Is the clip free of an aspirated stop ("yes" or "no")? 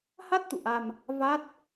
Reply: yes